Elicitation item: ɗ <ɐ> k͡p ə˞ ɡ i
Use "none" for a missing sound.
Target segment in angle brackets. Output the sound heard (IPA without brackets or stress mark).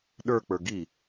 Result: ə˞